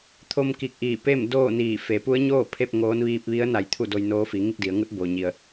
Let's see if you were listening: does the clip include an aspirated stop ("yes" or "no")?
yes